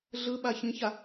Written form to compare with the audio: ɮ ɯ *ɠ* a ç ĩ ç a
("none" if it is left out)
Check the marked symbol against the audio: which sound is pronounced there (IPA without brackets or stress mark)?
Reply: ɓ